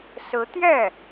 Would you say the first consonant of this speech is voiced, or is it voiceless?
voiceless